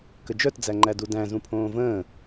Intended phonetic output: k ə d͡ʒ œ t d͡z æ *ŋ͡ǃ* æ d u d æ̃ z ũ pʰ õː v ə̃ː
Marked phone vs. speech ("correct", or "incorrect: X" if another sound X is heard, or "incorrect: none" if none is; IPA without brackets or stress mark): correct